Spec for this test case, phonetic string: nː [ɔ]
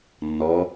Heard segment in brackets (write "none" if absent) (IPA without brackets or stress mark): ɔ